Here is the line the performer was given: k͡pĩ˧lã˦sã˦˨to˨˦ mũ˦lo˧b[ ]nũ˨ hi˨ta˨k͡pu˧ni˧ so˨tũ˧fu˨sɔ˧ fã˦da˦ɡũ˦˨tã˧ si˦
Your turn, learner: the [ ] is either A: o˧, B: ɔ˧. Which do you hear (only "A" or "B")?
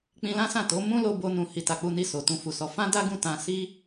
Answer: A